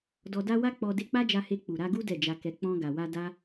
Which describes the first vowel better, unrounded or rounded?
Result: rounded